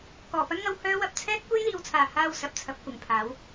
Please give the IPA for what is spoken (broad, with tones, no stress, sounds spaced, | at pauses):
k ɔː˨˩ p ɐ˥ n ŋ ɐ˧ w h œː˧ w ɐ˨ p̚ t͡sʰ ɛː˥ t̚ kʷ e˥ j l iː˨ w t͡sʰ aː˨˩ h aː˨ w s ɐ˨ p̚ t͡sʰ ɐ˧ p̚ kʷ ɪ˨˩ ŋ pʰ aː˨˥ w